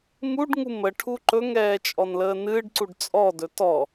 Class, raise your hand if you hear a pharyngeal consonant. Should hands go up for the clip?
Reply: no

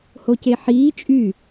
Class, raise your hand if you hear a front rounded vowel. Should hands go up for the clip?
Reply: yes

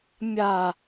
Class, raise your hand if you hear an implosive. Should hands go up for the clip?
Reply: no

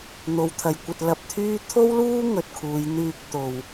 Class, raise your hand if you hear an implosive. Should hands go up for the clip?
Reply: no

